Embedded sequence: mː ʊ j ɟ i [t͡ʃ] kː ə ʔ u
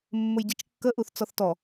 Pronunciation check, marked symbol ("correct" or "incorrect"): correct